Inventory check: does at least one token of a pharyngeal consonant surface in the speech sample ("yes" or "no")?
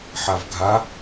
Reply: yes